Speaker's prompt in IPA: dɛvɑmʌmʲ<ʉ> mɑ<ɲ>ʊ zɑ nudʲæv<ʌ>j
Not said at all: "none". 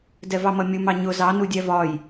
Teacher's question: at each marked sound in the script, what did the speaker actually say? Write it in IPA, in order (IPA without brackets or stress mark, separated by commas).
u, ɲ, ɒ